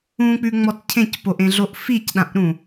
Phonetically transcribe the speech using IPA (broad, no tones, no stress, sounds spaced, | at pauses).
ũ k͡p ʉ ŋ͡m ɔ t cʰ ẽ c p o ʔ ẽ ɮ o ʔ f i c ɗ ã ʔ ɾ ũ